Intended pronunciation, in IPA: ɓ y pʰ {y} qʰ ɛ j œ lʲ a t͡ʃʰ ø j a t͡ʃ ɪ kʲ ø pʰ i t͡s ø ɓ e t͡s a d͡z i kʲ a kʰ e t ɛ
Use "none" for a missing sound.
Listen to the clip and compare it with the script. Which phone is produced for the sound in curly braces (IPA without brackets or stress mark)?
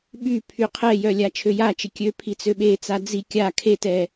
y